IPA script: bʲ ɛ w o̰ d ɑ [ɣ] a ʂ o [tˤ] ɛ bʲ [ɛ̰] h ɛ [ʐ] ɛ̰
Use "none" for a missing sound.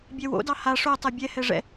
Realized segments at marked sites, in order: h, tˤ, ɛ, ʐ

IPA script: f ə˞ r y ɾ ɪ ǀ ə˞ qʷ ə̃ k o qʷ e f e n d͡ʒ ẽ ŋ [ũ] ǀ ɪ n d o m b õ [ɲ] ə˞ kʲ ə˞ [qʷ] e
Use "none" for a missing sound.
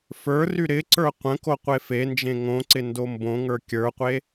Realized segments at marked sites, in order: õ, ŋ, qʷ

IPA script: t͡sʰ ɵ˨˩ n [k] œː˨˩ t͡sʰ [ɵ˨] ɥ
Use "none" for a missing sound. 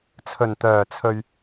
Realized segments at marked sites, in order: t̪, ɵ˨

